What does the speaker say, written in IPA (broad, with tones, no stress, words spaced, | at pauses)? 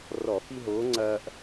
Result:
rɔ˧˩˧fi˦ɦoː˨˥ŋ͡ǀɐː˦ʔ